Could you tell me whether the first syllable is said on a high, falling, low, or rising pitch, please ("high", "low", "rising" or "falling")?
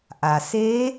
low